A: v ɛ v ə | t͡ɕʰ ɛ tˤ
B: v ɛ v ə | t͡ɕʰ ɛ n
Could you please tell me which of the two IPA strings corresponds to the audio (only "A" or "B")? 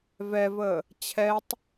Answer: A